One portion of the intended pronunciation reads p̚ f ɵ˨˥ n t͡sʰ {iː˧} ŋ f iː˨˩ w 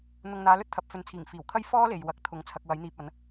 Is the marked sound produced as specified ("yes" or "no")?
no